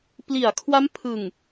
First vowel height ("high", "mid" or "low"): high